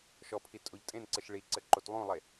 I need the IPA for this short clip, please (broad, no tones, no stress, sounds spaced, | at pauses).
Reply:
ʃ ɔ pʰ i tʼ o ʎ tʼ ẽ n ǀ ɘ ʃ ɭ i ǀ ɘ ǃ o t lˠ ũ lˠ e